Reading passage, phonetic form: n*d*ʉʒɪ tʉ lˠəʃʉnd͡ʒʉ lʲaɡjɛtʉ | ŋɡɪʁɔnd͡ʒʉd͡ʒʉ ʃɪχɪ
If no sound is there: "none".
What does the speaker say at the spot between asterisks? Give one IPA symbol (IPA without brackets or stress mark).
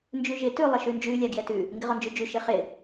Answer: d͡ʒ